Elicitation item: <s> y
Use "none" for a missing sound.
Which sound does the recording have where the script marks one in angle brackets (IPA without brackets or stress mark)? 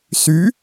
s